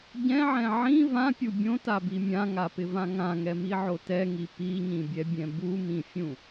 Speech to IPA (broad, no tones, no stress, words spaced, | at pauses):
ɟɛ̃ʕɛ̃ ʕĩ vãpʲu bʲõtabi mʲãŋapɪvã ŋãŋɛmiʕo tɛŋi piɲĩbʲɛbʲɛ̃ bumĩfʲũ